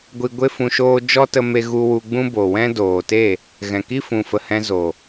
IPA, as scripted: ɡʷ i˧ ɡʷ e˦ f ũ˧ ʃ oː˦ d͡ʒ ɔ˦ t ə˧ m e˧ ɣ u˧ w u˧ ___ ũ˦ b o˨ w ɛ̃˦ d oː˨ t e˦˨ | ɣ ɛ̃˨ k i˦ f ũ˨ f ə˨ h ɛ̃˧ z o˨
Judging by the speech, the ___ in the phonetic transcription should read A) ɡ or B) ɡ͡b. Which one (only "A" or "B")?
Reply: B